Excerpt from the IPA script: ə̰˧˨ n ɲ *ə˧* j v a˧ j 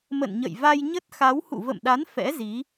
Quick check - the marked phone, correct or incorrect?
incorrect: ə̰˧˨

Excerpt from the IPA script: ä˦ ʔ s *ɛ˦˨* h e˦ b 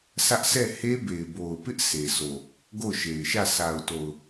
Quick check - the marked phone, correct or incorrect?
correct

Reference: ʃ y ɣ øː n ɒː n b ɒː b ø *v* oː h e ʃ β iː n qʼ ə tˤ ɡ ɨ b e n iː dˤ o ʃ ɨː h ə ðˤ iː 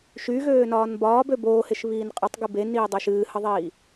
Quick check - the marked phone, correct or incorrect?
incorrect: b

